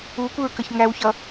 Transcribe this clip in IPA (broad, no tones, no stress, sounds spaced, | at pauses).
u kʷ ɪ ɹ k ə ç ŋ æ w ç ʌ